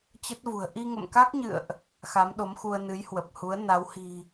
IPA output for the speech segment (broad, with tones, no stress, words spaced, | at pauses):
t͡ɕə˦˥t̚vṳ˨˩ə̯ ʔi˧ŋə̰˧˨mka˦˥k̚ɲɨ̰˧˨ə̯ʔ | xa˨˦mɗo˨˦mxu˧ə̯ nɨ˨˦jhwə˨˩p̚hu˨˦ə̯ na˨˦whi̤˨˩